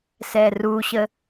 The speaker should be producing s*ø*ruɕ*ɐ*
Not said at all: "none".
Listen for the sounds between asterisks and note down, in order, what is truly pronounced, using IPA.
ɛ, ə

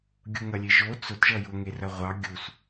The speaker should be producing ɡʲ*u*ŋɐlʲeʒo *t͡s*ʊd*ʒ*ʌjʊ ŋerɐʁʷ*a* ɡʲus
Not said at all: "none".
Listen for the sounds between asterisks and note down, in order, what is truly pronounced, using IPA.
u, t͡s, ʒ, ɑ

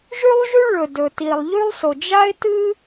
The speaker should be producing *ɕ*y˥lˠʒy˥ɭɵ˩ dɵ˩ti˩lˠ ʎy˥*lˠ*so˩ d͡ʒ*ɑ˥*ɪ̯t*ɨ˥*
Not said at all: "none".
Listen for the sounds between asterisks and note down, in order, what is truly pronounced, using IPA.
ʒ, lˠ, a˥, ɨ˥

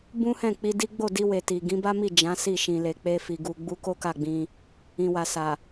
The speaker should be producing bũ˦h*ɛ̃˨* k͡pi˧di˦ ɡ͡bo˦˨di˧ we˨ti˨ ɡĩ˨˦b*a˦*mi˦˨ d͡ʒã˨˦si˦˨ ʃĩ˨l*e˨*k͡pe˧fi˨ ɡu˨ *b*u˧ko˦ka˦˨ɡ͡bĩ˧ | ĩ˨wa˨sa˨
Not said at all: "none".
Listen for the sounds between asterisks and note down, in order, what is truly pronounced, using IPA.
ɛ̃˦˨, a˦, e˨, ɡ͡b

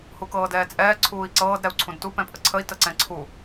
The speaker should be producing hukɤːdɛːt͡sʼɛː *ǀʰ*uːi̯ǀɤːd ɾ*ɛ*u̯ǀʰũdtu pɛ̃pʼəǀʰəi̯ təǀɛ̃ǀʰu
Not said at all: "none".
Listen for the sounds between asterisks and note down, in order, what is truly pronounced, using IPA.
ǀʰ, ɛ

